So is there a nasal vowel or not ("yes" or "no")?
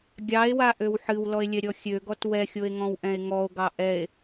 yes